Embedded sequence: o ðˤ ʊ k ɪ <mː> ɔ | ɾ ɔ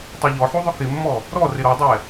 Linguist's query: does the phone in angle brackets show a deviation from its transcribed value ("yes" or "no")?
no